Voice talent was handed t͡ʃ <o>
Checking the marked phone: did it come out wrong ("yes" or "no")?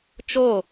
no